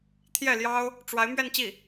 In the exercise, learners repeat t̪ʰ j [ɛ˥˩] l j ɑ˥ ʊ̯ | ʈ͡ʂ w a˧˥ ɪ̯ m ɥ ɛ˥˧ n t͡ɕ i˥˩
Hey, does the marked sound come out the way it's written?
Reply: yes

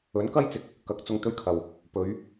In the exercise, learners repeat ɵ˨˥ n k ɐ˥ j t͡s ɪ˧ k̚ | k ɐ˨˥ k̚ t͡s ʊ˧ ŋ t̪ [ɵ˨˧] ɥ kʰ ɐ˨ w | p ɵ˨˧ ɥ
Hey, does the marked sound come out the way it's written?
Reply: no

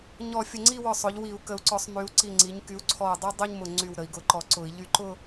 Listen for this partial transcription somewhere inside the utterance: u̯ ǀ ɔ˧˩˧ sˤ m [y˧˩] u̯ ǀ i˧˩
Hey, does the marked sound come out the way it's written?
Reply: no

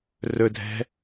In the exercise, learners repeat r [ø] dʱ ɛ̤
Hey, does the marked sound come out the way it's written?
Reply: no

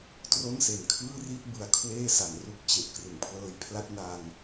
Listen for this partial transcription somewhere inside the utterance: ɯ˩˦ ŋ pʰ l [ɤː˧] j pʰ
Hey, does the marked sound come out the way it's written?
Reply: yes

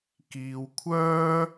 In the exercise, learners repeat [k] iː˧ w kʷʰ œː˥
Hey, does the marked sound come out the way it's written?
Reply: yes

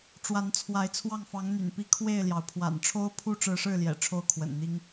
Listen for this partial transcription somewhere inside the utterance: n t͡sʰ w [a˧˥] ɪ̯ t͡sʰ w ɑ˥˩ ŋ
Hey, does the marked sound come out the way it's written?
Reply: yes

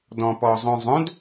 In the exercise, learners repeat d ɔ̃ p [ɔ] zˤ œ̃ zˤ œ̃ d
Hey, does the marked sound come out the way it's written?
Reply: yes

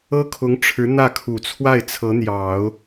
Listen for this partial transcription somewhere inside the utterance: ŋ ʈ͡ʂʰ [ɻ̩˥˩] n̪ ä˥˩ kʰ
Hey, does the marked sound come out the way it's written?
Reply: no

